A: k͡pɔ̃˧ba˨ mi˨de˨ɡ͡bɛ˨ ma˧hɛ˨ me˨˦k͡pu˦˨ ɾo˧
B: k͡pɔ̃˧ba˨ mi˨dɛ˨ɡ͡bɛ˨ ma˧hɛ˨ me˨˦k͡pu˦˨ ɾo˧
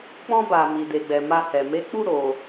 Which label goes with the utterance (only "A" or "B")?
A